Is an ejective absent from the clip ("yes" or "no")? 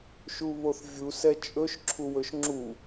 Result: no